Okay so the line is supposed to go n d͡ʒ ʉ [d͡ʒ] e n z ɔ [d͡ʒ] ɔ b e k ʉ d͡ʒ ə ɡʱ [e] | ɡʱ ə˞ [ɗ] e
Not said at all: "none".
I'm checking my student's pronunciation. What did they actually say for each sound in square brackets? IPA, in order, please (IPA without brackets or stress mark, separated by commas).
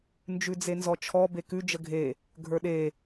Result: d͡z, t͡ʃʰ, e, ɗ